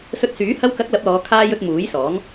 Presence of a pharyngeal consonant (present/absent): absent